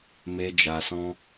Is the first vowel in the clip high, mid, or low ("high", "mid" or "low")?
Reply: mid